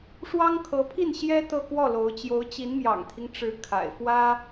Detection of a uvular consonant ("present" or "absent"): absent